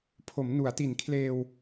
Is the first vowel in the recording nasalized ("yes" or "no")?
no